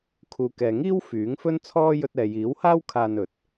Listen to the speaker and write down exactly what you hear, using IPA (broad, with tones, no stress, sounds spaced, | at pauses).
kʰ uː˨ k ɛː˨ ŋ iː˥ w f yː˨˥ ŋ f ɵ˥ n t͡sʰ ɔː˥ j ɵ˧ t̚ ɛː˨ j iː˨˥ w h aː˥ w kʰ aː˧ n ɵ˨˥ t̚